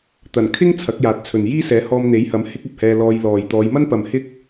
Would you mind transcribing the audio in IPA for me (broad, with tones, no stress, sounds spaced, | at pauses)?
t̪ ɐ˨˩ n kʰ ɪ˥ ŋ t͡sʰ ɐ˨˥ k̚ j aː˨ t̚ t͡sʰ ɵ˨ n j iː˥ s ɛː˨˥ h ɔː˧ m n̪ e˨˥ j h ɐ˨˥ m h ɪ˥ k̚ ɐ˨ p̚ h ɛː˧ l ɔː˧ j l ɔː˨ j t̪ ɔː˨˧ j m ɐ˥ n p ɐ˨ m h ɪ˥ k̚